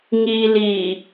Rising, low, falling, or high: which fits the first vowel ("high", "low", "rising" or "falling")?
low